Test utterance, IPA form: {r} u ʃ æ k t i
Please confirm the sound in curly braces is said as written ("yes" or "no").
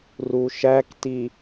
yes